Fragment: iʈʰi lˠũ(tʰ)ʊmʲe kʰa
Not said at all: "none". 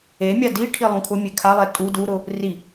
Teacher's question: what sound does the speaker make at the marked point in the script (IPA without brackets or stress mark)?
kʰ